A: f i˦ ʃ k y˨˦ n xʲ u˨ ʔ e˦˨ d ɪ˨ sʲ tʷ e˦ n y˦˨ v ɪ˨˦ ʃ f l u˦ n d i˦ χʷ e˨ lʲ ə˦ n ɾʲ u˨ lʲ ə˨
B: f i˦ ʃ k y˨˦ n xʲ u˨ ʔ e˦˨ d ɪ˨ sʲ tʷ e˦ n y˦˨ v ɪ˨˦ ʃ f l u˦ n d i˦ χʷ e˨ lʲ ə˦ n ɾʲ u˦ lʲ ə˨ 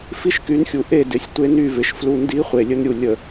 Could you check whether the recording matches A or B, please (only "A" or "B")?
A